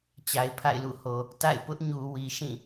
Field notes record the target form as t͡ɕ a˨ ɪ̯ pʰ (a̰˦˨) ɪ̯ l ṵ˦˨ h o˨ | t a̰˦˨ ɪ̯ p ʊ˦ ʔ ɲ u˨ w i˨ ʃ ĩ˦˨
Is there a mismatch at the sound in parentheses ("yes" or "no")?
no